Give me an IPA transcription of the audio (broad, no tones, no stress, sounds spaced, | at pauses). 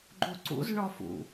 ɡ͡ǃ u ǀ ṵ z ɳ ɔ f ṵ